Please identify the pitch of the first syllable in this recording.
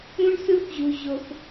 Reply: high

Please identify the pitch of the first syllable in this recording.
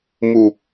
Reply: low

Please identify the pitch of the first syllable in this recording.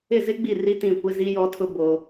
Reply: falling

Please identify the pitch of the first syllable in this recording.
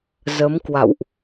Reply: rising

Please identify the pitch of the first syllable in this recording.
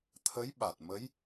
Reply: rising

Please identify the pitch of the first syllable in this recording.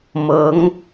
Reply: rising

